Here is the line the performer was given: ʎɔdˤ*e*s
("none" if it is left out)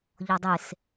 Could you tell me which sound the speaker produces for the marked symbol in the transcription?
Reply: e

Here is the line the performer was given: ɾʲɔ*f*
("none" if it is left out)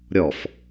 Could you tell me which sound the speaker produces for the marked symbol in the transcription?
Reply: f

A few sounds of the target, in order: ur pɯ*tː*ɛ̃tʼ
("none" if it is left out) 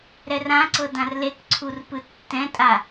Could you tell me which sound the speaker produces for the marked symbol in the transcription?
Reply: tː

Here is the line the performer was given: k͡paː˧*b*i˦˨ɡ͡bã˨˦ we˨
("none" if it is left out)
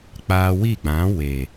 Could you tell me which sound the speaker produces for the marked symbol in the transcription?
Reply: w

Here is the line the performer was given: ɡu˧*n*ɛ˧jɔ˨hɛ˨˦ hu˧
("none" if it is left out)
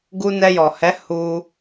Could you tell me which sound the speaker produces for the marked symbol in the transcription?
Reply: n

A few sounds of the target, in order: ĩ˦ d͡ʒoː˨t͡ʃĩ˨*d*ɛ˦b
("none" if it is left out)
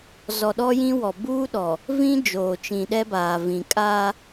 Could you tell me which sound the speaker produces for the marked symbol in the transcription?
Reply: ɗ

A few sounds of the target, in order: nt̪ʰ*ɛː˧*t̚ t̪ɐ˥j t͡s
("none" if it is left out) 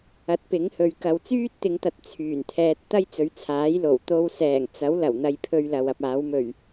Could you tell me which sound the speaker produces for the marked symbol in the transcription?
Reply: ɛː˧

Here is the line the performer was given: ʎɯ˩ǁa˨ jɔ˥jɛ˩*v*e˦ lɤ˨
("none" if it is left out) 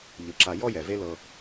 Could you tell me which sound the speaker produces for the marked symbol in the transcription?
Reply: v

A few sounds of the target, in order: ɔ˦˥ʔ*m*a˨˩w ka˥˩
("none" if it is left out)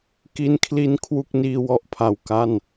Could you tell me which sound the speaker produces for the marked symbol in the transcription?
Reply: pʰ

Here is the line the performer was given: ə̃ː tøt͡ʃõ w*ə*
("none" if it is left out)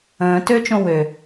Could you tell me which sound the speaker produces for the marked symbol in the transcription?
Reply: ø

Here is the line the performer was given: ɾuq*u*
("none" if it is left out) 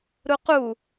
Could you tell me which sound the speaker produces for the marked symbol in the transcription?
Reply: u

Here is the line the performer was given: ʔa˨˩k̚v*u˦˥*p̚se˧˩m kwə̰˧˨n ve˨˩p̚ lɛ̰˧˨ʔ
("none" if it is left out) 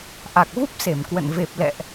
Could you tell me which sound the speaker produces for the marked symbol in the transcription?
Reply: u˦˥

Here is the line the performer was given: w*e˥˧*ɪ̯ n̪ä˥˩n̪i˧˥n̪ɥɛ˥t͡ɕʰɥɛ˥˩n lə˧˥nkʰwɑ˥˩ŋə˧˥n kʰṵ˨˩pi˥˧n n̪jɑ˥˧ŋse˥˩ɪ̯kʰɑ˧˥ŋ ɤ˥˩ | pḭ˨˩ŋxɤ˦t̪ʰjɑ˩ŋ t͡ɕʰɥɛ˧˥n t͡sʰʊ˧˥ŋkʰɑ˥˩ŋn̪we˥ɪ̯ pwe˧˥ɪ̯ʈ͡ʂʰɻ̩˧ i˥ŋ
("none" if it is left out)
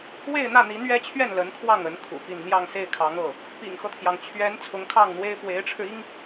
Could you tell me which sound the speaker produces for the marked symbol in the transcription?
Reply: e˥˧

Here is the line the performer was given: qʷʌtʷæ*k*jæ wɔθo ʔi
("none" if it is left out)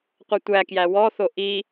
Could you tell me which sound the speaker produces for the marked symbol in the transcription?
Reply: k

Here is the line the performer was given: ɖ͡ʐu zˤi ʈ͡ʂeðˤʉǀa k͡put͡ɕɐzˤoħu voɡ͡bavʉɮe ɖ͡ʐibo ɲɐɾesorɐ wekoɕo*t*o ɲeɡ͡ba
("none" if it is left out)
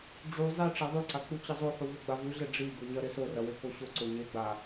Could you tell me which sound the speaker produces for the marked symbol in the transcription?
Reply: ǀ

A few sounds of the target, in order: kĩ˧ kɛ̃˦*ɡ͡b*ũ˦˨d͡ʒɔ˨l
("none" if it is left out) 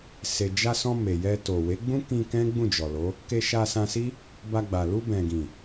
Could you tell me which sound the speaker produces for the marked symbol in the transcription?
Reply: ɡ͡b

